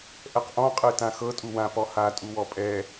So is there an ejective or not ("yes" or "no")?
yes